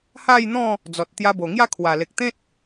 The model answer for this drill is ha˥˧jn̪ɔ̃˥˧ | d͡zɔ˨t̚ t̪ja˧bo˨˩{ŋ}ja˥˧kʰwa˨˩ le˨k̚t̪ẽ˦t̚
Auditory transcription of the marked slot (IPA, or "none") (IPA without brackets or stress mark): ŋ